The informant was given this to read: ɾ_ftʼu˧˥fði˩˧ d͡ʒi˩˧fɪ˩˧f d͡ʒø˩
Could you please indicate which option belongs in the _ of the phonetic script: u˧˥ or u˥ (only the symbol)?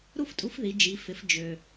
u˥